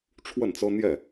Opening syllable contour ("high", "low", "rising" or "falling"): falling